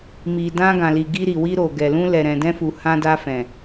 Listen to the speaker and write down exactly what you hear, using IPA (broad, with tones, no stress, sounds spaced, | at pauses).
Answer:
m i˨ d ã˧ ɡ ã˨ l i˨ ɡ i˧ ɾ i˨ w i˧ ɾ o˨ ɡ ɛ˨ l ũ˧ l ɛ˨ ɾ ɛ̃˨ d ɛ̃˧ f u˨ h ã˧ d a˧ f ɛ̃˨